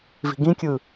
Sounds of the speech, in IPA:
vi̤ɡĩkʲɯ

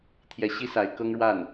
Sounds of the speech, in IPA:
t̪ʰjɛ˥ ɕi˥ sa˧˥ɪ̯ kɤ˥ŋɻwa˥˩n

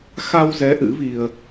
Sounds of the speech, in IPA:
xa˧wzɛ˨˦ ʔɨ̰˧˥vi˧ə̯

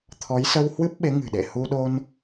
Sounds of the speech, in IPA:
t̪ʰɔ˨˦jsə˧whwɨ˦˥p̚ɓe˨˦ ŋɨ̤˨˩ɗḛ˧˨ hu˧ɗo˧n

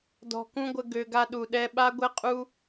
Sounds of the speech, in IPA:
dɔ̤˧kũ˦ɡʷə˧ ɡø˧ɡa˦ɗu˨ɗɛ˦ ɓa˦ɡʷɛ˦qʼu˦

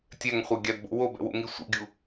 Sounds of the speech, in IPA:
tʲɛŋχʷɛɡʲadbo̰ wobɛ̰wṵŋi sʷḭɡʲu

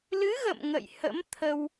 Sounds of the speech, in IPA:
lɨ˨˦ɣə̰˧˨m ŋə̰˧˨jhə̰˧˥m t̪ʰə˧w

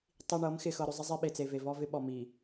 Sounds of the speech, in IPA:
tˤi˨ɳɤ˨˦mxɪ˨ xɤ˨ɾʏ˨zˤɪ˦zˤe˦ ɓe˨t͡se˨ve˨ vɔ˦ vɪ˦ɓɔ˨ mi˨

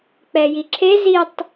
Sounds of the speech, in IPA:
k͡pɛjiǁʰe zitˤ

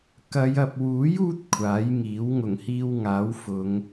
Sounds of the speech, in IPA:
kɐ˨˧j ɐ˨p̚wuː˨˥juː˧t̚ kʷʰaː˨˥jŋiː˨˥w ŋʊ˨˩ŋhiː˧wŋaː˨˥wfʊ˨˧ŋ

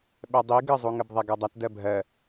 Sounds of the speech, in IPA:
ɓɛdˤi ɡəzˤuŋəb ðˤɛɡɜdˤɐt dɜbʱɜ

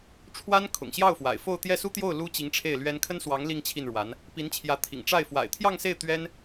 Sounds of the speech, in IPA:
ʈ͡ʂʰwa˥n kʰʊ̰˨˩ŋɕjɑ˥˩ʊ̯fwa̰˨˩ɪ̯ fo˥˧ʊ̯ t̪jɛ˥˩su˥t̪jo˥˩ʊ̯ lu˥ t͡ɕi˧˥ŋʈ͡ʂʰe˥˩ɪ̯lɥɛ˥n kʰə˥nswɑ˧˥ŋ li˥˧ŋt͡ɕʰi˥˩nɻwa˧˥n | pi˧˥nt͡ɕʰjä˧˥ t̪ʰḭ˨˩ŋ ʈ͡ʂa˥˩ɪ̯ fwa̰˨˩ɪ̯t̪ʰjɑ˥˧ŋse˥˩ɪ̯ t̪ɥɛ˥n

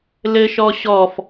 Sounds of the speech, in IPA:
lɘʃɔɕɔf

